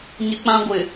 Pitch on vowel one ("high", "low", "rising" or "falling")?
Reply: high